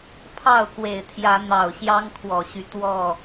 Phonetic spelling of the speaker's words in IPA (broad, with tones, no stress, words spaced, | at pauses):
pʰɑ˥˨ʊ̯kwe˨˩ɪ̯t̪ʰjä˨˦ n̪ɑ˨˩ʊ̯ɕjɑ˦ŋkʰwɔ˨˩ɕy˦ t̪wɔ˥˨